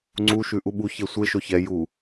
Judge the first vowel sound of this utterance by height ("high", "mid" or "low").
high